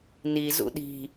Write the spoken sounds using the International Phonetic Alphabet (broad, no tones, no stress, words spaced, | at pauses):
ni zṵɗi̤